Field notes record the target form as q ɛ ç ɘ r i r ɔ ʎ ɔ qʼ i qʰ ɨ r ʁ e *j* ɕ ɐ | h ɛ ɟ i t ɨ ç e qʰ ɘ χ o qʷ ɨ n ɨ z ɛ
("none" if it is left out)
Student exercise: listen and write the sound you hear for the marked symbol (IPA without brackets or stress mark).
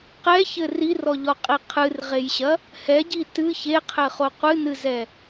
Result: j